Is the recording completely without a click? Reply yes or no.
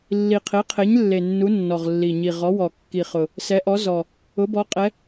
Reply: yes